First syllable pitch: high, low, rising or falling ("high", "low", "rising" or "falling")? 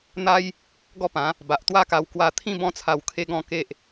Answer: high